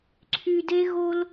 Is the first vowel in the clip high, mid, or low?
high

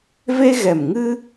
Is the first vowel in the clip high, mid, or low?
mid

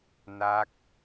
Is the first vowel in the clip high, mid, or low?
low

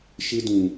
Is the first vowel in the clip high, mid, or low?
high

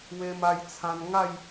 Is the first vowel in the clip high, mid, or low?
mid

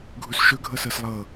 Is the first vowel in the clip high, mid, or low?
high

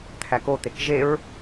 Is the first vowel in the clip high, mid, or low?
low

